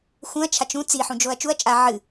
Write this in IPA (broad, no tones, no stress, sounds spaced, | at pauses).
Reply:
x ũ ɐ̯ t͡ʃʰ a t͡ʃ ũ t͡s i ħ ũ d͡ʒ o ɐ̯ t͡ʃ u ɐ̯ t͡ʃʼ a ʕ ɨ